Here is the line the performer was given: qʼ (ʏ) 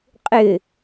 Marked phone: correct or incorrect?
correct